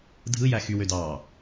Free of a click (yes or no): yes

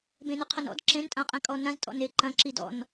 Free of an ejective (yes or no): no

